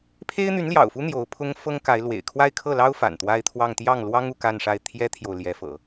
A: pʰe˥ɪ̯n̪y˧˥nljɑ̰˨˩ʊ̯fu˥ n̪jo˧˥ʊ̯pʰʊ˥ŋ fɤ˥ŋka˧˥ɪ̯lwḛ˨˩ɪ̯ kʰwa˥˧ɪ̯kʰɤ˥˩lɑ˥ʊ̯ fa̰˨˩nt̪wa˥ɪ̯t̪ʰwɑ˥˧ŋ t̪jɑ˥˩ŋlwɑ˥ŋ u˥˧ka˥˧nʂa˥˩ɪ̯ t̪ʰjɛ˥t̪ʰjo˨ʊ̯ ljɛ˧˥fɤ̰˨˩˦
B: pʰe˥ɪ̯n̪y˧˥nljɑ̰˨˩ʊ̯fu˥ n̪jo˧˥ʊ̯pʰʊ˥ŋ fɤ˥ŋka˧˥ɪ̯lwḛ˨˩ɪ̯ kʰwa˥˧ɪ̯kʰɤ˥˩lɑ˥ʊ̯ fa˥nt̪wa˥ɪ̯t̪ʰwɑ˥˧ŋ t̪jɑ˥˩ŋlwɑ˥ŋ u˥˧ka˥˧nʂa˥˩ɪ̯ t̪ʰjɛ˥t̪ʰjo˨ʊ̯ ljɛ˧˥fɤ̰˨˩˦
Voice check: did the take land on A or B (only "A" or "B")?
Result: A